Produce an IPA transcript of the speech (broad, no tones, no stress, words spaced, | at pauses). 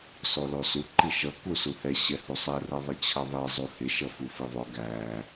sɔlɔsu ǃiʃʌ kusuhɛ ɕɛhusˤɛ rʌðˤʌt͡ɕʰʌðˤɛ zˤuhɪ ʃʌfufiðˤʊ ɡæ